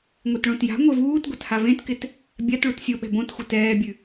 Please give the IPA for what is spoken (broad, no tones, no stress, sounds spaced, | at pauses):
ŋʷ e t ɭ õ t j a̤ ŋʷ e v uː t ɡʷ ɐ t h a v ẽ t k ɪ t | bʲ a t ɭ u t sʲ o ɓ ɛ̤ b õ t xʷ ɪ t ɛː bʲ ʉ